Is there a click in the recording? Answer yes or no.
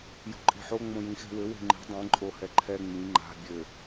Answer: yes